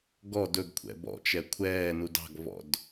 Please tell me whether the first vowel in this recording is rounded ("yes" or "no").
yes